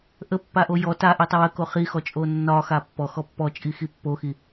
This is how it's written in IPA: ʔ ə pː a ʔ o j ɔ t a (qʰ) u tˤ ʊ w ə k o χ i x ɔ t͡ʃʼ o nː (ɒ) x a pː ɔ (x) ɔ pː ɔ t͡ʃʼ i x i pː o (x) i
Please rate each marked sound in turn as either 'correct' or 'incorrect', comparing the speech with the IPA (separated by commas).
incorrect, correct, correct, correct